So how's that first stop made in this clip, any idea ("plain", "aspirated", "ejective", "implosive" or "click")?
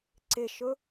click